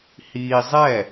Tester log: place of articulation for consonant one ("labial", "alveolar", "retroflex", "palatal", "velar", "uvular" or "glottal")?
glottal